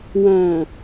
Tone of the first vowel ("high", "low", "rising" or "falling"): low